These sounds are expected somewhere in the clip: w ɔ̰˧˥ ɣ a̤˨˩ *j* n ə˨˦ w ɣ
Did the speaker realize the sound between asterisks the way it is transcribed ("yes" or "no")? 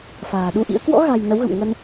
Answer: yes